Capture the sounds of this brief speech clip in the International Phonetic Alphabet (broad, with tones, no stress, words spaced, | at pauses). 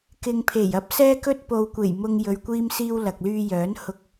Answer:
kɪ˨ŋpʰe˨˩j ɐ˥p̚sɛː˥kɵ˥t̚ po˨wkʷe˨˩jmʊ˧ŋ jɵ˨ɥkʷiː˧msiː˧w lɐ˨k̚lyː˧jœː˨˥n hʊ˧k̚